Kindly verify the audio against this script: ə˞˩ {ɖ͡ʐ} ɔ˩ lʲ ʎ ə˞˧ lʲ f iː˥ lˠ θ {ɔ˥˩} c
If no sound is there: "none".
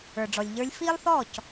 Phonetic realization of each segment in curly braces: ɖ͡ʐ, ɔ˥˩

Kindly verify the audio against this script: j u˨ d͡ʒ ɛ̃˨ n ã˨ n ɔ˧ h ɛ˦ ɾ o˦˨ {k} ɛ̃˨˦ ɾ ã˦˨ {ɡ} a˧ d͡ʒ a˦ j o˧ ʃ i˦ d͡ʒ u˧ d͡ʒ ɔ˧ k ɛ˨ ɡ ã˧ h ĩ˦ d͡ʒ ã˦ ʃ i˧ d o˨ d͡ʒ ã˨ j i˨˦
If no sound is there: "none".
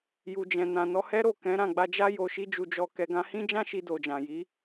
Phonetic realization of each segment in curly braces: k, ɡ͡b

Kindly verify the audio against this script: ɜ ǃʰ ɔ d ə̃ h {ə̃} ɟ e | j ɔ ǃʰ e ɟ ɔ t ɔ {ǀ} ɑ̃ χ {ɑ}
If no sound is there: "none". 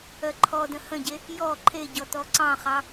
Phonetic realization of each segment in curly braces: ə̃, ǀ, ɑ

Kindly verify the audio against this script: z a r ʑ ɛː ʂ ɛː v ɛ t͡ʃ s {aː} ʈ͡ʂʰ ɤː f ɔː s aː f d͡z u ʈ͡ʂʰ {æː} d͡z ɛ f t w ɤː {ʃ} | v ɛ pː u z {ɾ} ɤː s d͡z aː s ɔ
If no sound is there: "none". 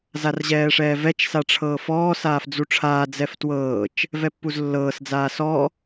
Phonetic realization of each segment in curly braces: a, aː, t͡ʃ, lː

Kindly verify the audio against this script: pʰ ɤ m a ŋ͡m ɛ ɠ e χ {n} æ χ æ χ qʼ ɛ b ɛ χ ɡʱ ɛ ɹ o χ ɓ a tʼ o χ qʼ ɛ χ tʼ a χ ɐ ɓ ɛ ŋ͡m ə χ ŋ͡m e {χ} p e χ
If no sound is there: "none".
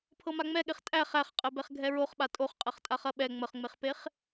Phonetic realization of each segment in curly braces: tʼ, χ

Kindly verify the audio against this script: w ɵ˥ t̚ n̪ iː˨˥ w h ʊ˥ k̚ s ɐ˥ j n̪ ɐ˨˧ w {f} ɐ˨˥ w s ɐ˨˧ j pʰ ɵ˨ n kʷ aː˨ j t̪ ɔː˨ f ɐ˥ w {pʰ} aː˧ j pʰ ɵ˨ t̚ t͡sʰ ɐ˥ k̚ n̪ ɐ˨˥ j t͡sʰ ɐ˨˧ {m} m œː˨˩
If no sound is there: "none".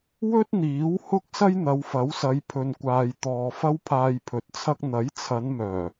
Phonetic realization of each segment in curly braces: f, pʰ, n

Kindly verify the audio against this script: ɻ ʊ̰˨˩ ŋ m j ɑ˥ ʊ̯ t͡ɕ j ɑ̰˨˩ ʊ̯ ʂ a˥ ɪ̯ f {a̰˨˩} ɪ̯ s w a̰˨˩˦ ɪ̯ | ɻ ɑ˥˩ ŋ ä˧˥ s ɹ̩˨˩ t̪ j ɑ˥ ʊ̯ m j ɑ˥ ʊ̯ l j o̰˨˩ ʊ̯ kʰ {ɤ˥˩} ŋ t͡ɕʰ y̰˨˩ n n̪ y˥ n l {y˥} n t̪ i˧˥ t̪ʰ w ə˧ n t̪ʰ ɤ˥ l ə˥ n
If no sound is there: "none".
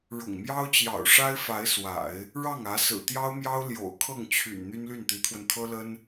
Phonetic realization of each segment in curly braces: a˧˥, ɤ˥˩, y˥˩

